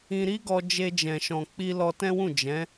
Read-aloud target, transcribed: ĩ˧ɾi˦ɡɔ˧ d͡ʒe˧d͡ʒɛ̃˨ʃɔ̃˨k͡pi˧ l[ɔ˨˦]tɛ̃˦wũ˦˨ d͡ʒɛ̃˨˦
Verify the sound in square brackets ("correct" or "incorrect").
incorrect